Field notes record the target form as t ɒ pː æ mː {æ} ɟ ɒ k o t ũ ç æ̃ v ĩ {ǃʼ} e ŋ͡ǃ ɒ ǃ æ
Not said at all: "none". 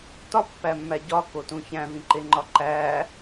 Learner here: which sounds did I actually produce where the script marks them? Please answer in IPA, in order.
æ, ǃ

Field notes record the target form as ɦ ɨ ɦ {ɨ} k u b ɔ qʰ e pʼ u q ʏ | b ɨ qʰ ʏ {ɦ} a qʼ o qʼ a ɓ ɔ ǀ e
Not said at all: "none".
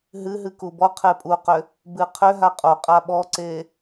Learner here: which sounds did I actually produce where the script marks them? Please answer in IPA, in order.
ɨ, ɦ

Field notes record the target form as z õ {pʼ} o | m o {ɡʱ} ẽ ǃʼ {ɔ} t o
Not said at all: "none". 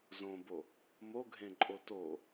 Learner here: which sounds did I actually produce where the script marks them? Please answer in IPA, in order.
b, ɡʱ, o

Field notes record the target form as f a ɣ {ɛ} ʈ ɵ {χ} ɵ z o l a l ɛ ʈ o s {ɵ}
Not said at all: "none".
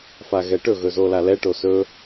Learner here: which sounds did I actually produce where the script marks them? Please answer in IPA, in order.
ɛ, ɣ, ɵ

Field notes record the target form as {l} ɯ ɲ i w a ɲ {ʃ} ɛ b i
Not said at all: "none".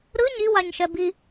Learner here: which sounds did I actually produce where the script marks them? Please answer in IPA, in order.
ɾ, ʃ

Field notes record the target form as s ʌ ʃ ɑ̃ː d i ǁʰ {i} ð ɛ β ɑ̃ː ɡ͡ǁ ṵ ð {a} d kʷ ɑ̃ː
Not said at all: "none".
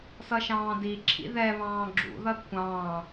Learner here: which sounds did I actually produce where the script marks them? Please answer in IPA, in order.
ḭ, ʌ

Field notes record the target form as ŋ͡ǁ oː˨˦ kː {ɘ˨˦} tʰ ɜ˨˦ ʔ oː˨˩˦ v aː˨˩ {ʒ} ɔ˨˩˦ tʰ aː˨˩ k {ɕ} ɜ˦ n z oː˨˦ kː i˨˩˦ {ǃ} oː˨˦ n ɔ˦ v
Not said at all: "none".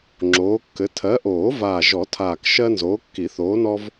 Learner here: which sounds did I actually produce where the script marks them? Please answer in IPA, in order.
ɘ˨˦, ʒ, ʃ, θ

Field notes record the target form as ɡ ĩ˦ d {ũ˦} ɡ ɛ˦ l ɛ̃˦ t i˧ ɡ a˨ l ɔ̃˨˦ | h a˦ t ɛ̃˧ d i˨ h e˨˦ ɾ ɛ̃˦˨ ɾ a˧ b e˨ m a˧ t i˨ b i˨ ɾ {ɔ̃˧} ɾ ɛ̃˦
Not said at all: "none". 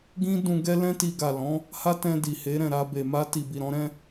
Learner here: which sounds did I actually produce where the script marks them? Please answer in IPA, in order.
ũ˧, ɔ̃˨˦

